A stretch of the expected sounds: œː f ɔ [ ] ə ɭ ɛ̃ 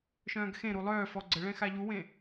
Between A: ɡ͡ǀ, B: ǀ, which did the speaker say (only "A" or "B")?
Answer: A